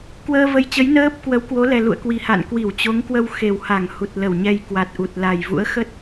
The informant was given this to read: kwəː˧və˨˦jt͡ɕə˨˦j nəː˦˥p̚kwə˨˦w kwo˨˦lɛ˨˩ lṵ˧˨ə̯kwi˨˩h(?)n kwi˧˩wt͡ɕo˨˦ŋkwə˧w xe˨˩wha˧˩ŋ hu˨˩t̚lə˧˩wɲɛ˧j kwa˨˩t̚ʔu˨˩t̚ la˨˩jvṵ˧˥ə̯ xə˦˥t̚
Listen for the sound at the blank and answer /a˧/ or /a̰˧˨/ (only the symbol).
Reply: a̰˧˨